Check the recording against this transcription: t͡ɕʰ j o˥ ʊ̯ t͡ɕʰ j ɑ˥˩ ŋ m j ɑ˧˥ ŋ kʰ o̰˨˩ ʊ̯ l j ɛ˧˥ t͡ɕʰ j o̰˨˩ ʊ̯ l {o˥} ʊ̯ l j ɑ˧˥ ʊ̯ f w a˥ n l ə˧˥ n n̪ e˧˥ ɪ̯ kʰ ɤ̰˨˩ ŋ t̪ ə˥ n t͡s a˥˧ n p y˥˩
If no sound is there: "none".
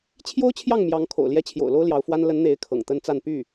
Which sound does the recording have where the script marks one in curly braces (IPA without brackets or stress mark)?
o˥